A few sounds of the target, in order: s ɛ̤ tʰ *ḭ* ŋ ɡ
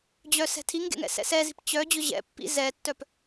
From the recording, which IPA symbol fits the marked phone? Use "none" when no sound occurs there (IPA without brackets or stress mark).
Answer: i